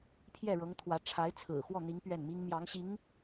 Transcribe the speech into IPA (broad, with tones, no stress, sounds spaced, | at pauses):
pʰ j ɛ˥˩ ɻ ɤ˧˥ ŋ t̪ʰ w ä˧˥ ʈ͡ʂʰ a˧˥ ɪ̯ t͡sʰ ɹ̩˨˩ x w ɔ˥˩ n̪ i˧˥ ŋ p ɥ ɛ˥˩ n m i˥ ŋ m j ɑ˧˥ ŋ ɕ i˧˥ ŋ